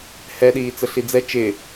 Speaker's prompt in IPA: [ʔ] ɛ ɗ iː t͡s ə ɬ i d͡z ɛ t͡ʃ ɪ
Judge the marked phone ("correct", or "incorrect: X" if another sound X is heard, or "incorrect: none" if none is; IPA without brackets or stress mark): incorrect: h